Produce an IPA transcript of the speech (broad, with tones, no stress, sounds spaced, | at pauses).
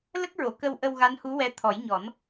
l ə˦˥ k̚ ɹ o˨˩˨ k ə˧ w ʔ ə˧ w ɣ a˧˥ n h u˧˥ w ɛ˧˥ t̪ʰ ɔ˨˩˦ j ɲ ɔ˨˩˦ n